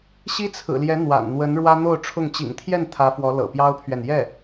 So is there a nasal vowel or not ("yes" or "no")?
no